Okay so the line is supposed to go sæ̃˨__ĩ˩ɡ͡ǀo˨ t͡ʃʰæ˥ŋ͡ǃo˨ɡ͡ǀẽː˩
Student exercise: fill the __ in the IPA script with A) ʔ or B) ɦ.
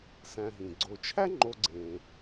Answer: B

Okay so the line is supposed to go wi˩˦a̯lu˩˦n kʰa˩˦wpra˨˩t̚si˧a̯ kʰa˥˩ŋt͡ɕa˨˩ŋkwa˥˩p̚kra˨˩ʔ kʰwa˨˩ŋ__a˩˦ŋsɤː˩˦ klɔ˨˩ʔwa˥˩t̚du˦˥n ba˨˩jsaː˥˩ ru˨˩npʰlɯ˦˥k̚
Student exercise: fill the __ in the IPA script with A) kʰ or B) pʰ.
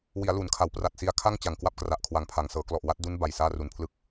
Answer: B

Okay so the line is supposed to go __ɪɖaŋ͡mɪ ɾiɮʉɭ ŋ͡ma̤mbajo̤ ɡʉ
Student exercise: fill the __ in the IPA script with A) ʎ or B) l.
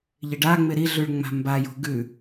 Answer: A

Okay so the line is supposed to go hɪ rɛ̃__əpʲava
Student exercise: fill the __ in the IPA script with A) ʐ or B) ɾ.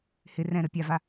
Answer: B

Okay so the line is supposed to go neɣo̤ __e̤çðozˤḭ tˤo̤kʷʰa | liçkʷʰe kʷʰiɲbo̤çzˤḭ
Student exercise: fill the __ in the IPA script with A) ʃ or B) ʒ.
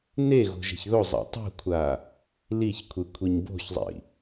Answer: B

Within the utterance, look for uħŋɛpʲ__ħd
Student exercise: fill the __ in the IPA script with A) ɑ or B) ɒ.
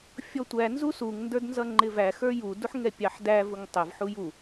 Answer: A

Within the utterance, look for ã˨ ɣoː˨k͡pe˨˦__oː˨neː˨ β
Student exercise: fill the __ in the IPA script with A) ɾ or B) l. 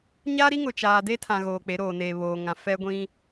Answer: A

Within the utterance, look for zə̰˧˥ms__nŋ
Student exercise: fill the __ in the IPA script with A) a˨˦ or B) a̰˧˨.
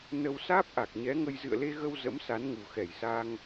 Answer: A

